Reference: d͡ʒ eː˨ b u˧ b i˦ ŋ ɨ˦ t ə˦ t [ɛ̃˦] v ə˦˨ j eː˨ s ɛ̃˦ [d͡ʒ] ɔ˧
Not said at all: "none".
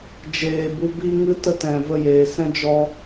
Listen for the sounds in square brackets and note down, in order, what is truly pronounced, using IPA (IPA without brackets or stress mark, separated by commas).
ɛ̃˨, d͡ʒ